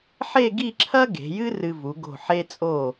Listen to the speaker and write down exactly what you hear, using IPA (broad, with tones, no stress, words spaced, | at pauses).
ħe˥˧ɡi˥˧ǁʰɐ˥ ɡe̤˩˧jɨ˥ rɨ˧vu˩˧ ɡo̤˧˩ ħe˧t͡sʼo˧˩